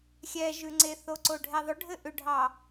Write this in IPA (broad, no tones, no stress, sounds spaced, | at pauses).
xʲ ɛ ʒ ʉ ŋ͡ǀ e θ o ǀ o ɖʱ ɛ ðˤ ʏ ɖʱ ɘ ʔ ʏ ɖʱ ɑ